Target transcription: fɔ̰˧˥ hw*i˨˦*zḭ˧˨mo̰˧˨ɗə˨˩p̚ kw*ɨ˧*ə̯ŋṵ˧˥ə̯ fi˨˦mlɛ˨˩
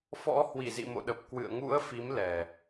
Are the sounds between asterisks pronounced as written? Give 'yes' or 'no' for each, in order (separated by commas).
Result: no, no